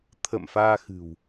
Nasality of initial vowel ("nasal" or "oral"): oral